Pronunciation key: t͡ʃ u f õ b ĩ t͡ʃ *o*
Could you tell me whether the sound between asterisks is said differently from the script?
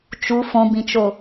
no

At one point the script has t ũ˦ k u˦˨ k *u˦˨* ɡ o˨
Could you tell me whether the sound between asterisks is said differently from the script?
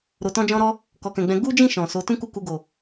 yes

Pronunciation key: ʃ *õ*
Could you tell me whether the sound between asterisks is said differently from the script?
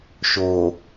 yes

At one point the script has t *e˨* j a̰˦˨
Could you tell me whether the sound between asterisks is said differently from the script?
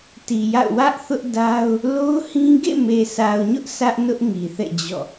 yes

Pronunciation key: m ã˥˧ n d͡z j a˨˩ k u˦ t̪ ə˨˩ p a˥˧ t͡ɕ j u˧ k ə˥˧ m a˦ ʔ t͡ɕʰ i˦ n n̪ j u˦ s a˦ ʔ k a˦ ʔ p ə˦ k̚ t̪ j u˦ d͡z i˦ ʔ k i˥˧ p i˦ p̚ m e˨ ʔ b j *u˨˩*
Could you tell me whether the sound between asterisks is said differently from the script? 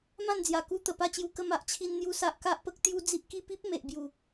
no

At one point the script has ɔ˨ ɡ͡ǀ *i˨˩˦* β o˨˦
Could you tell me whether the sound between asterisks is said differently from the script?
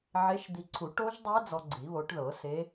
no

